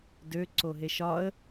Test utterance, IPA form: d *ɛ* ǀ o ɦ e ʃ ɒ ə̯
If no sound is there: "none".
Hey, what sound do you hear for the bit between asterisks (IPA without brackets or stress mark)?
ø